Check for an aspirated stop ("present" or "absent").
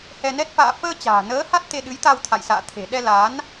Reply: present